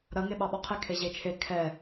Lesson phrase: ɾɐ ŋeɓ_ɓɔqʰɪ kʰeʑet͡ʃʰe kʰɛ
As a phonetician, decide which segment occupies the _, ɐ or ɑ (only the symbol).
ɑ